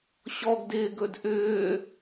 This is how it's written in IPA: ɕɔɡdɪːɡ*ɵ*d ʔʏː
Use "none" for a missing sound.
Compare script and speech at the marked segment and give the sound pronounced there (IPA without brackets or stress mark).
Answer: ɵ